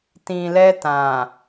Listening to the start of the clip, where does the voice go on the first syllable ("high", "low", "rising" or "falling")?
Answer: low